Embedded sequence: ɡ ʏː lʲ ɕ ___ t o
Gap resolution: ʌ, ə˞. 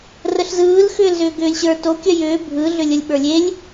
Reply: ə˞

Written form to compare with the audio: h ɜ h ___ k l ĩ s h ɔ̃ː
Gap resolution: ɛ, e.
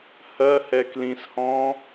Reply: ɛ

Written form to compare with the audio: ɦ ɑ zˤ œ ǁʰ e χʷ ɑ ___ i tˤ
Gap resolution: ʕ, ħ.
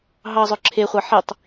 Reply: ħ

